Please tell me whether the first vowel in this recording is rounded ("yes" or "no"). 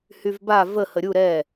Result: yes